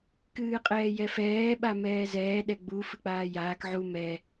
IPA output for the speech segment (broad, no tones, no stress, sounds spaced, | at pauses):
k ɨː qʼ ɛː j ɛ f ɛː ɓ a m ɛː z ɛː ɗ ɛ ɡ͡b u f ɨ k͡p aː j aː k ʕ u m ɛ